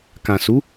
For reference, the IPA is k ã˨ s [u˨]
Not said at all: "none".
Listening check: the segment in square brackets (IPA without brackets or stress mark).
u˨˦